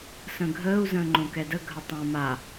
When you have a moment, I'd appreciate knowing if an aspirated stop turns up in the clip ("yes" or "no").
no